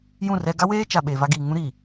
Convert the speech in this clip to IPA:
j ũ˦˨ r ɛ˦ ɡ a˦ w eː˦ t͡ʃ a˨ ɓ e˨ v a˦ ɡ iː˨ ŋ ũ˦ ɾ i˨

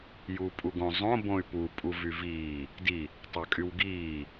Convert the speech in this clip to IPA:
j uː pʼ u ɡ õ zˤ õ b õ y̯ p u pʼ u v y v iː | d i | tˤ ɑ kʼ y w ɡ iː

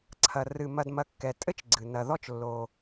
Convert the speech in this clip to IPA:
ǀʰ ɐ˩ r ɨ˩ m ɐ˨ d m ɐ˨ kː ɛ˩ tʼ ɘ˥ t͡ʃ ɡ͡ǀ ɨ˩ n ɐ˨ ð ɔ˦ t͡ʃ lː o˩

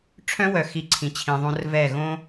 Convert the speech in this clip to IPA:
ʈ͡ʂʰ œ̃˦ w œ˨ x i˨ ǀʰ ĩ˨ t͡ɕʰ ĩ˨ ðˤ õ˦ r v ɛ˦˨ ɣ õ˦

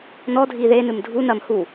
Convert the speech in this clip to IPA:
n ɔ dʱ i ð e n ɨ m dʱ u n ɐ m h u

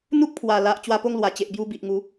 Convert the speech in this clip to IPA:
n̪ u˦ k̚ pʰ w a˨˩ l a˨ ʔ t͡ɕ w a˧ p o˥˧ ŋ l w a˨˩ t͡ɕ e˨ ʔ b j u˧ b i˨ ʔ ŋ u˨˦

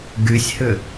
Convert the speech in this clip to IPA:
ɡ y sʲ h ʏ

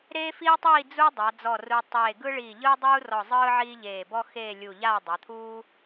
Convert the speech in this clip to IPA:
ɾ eː˥ f iː˥ tˤ iː˥˧ d͡z u˥ dˤ a˩˧ d͡z ɔ˧˩ r u˧ tˤ eː˧˩ ɡ ɯ˥ ɭ iː˧˩ ʎ ɯː˥ dˤ uː˥ r ɔ˧˩ zˤ ɯː˥ ʕ iː˥ ʎ eː˧˩ b ɔ˥ x eː˥˧ lʲ u˧˩ ʎ aː˥˧ dˤ a˩˧ t̪ʰ uː˥

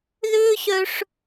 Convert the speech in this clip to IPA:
ð ʏː˥ ɕ œ˦ ʂ

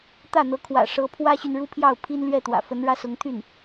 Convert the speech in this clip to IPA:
t̪ ä˥˩ n̪ ɤ˧˥ kʰ w ä̰˨˩ ʂ ɤ˧˥ pʰ w ä˥ ɕ y˨ n ɻ u˥ pʰ j ɑ˥˩ ʊ̯ pʰ i˥ n l ɥ ɛ˥˩ t̪ w ä̰˨˩ f ə˧˥ n ɻ ä˥ s ʊ˧˥ ŋ t̪ʰ y˥˩ n

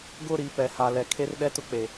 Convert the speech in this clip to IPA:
ɡ ʊ˦˨ ɾ i˨˦ p ɛ˨ h a˨ l ɛ˨ kʰ e˦ r ɗ ɛ˦ t ʊ˦ k͡p e˨

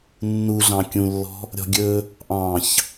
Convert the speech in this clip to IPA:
nː u ɮ ɑ̃ kʲ ũ lː ɔ̤ | ɾʲ ɔ̤ ɡʲ ɵ | ʔ ɑ̃ ç

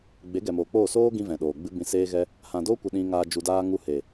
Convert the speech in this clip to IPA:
ɡ͡b e˨˦ ɡ ɛ˨ m oː˨ k͡p oː˦˨ s oː˦ ɡ ĩ˧ v ɛ̃˨ ɗ oː˨ ɡ͡b ɨ˦ b ĩ˧ s eː˦ ɣ ɛ˦ | h ã˨ d oː˦ kʷ ə˧ ɗ ĩ˧ ŋ aː˧ d͡ʒ u˧ d aː˦ ŋ u˧ h e˨

